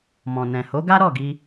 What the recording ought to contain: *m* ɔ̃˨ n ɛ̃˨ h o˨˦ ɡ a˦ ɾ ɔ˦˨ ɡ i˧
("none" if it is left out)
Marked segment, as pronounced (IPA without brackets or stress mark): m